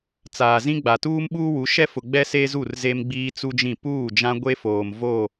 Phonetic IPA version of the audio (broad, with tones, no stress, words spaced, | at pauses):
t͡saː˨zĩ˦ɡ͡ba˨ tuː˦mɓuː˦wu˨˦ ʃɛ˦fʊ˨ɡ͡bɛ˦ se˦zu˦˨r ze˦mɡ͡biː˦t͡su˦d͡ʒĩ˦˨ puː˦˨d͡ʒã˦ɡʷe˦foː˨m vo˦˨